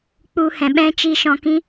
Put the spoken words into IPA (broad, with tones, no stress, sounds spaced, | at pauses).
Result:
k͡p u˧ h ɛ̃˨ ɓ ɛ̃˦ t͡ʃ i˧ ʃ ɔ̃˧ k ĩ˦